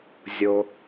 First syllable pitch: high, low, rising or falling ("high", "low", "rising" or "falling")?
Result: low